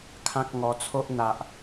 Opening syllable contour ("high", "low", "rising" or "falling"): high